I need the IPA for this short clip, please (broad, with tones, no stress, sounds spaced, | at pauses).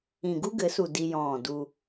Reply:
ĩ˨ ɡ u˦ ɡ ɘ˨˦ s u˨ d i˦ j ɔ̃ː˦˨ d u˦